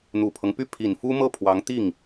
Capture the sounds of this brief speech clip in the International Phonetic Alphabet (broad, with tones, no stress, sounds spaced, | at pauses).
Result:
n̪ u˨˩ pʰ ɤ˦ ŋ p y˥˩ pʰ i˨˩ n f u˥ m ɤ˥˩ pʰ w ɑ˧˥ ŋ t̪ i˥˩ ŋ